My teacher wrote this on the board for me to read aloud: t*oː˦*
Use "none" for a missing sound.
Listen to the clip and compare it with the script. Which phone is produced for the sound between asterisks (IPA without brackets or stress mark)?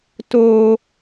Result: oː˦